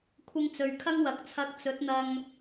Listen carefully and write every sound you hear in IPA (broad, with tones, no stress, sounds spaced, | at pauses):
kʷʰ ɪ˧ ŋ t͡s ɵ˨ ɥ kʰ ɐ˥ ŋ w ɐ˨˥ k̚ t͡sʰ ɐ˧ k̚ t͡s ɵ˨˥ t̚ n̪ ɐ˧ ŋ